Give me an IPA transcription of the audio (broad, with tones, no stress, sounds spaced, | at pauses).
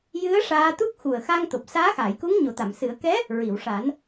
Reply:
j ɨ˧˥ ə̯ ʂ aː˧ t̪ u˦˥ k̚ x u˨˩ ə̯ x a˧ ŋ t̪ o˨˩ p̚ s aː˧˥ x aː˨˩˨ j k u˧˥ ŋ ɲ o˨˩˨ t̪ a˨˩˨ m s ɨ˨˩˦ ə̯ k ɛ˧˥ | ɹ i˨˩˨ w ʂ a˨˩˦ n